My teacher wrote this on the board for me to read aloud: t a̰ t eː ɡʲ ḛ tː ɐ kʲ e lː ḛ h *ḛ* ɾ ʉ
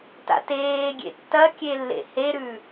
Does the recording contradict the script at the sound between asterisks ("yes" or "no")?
yes